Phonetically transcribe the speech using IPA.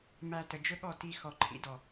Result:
mæ˧tə˨d͡ʒɵ˦ɠɔ˦˨ ti˧ xɔ˨ǃʰḭ˨˦dɔ˨

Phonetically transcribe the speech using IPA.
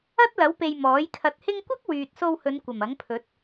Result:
ɐ˥t̚lɐ˨˥wpe˨j mɔː˨˥jkʰɐ˧t̚ hɪ˥ŋ kʷɐ˥k̚ wyː˨t̚so˧whɵ˨˧n kʷɐ˨˩mɐ˨˥ŋpʰɵ˨˥t̚

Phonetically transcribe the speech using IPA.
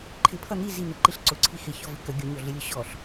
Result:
ǃʰɪpʰʌ n̪i zin̪əǃiɬ ǀʊǀʰi xɪçɔvɪ kə ɡʲʊɲɔɮɪlʲʊ ɕɔɬ

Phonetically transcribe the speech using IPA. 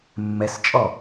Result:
mːɛst͡ʃʼɔ

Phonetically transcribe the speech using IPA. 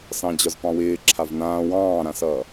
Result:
sɑ̃d͡ʑɒzpɑ̃wɪː ǁʰavnãː wɑ̃ːɾãsʌː

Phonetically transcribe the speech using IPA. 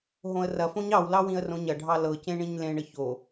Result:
ɦõə̯rɐfõɲ ɑwlɑ wĩə̯rõɲɐɖʱɑ lɤcẽ ɳĩɲlẽɳə ço

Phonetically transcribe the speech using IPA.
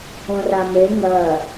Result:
õrame ŋɐ

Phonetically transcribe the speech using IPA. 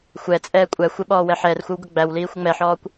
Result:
xʷɛt͡sʼɛː kʷʼæxʷɪ ɓɔːwɛħɛːrxʷəw ɡʊɡ͡bæwliː xʷəŋ͡mɛħɔːkʷ

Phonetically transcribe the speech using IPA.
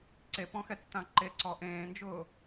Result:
ǀepɔ̃xɛtːã ǃeǀɔ ʔẽːnd͡ʒʊː

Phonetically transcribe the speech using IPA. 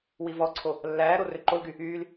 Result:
wivɔǀʰo | lːæː ɾorøǃolɡy | yːl

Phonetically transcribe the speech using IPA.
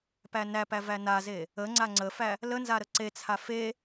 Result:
pænæpæ vænaze | ə ŋ͡ǀaŋ͡ǀəfæ | lənza ɾəǀet͡sʰa fe

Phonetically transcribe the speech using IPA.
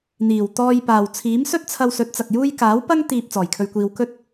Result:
n̪iː˨˩wt̪ɔː˧j paː˨w t͡sʰiː˨˥msɵ˥t̚t͡sʰɐ˧wsɵ˨˥t̚ t͡sɐ˨k̚juː˥j kaː˨˥wpɐ˥ŋ t̪iː˧p̚ t͡sɔː˨˩jkʰɵ˧ɥkʷiː˧w kɵ˥t̚

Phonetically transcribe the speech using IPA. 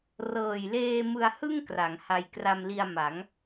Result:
rɤː˨˩jleː˧ mɯ˧a̯hɯ˥˩ŋ kra˩˦ŋha˧j kra˧mli˧a̯ma˩˦ŋ

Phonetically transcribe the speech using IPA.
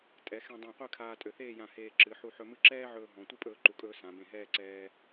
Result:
tʼɛ˩˧ xɛ̃˧dˤɛ̃˧˩qʷɨ˥˧kʰaː˧ tʼø˩˧θeː˥˧jã˧˩ heː˧ ǁɨ˩˧ ħu˧ħɵ˧mɨ˥˧ ǁɛː˥ʕɵː˧ ɦɔ̃˩˧ tʷɨ˥pʼɵː˧ǃu˩˧kʼɵː˧ sã˩˧bẽ˧˩ɦɛː˥˧ǀɛː˧

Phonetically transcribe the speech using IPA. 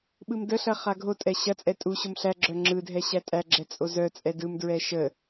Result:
ɓɯmdəɬɐ χaɡʱotʼɛ ɕɐt͡sʼɛ tʼu ɕomɬæɡ͡ǁœ ŋ͡ǁɯdʱɛ ɕætʼæɡ͡ǁɛ t͡sʼozœt͡sʼɛ dɯmdɹɛ ʃə

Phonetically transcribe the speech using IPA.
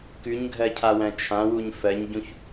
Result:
kʉɲɡʱɜcʰawæ̃ t͡ʃʰãwuɲ fɜɲɟũç

